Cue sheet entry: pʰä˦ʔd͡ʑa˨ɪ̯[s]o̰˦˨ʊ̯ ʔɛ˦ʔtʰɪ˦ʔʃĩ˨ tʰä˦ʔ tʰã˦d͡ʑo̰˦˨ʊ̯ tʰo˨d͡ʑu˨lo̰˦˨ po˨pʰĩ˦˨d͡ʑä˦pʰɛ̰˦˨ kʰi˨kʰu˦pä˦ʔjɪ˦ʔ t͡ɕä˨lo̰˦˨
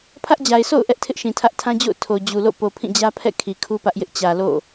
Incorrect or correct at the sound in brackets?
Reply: correct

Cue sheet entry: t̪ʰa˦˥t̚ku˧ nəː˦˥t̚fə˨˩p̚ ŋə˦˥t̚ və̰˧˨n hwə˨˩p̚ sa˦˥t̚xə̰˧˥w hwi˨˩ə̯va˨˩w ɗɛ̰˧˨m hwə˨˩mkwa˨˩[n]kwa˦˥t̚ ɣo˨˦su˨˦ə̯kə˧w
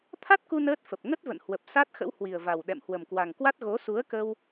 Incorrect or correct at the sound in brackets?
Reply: incorrect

